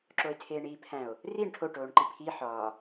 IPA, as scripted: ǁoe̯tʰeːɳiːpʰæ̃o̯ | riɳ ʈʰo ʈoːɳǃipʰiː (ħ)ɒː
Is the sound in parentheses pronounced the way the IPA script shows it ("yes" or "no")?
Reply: yes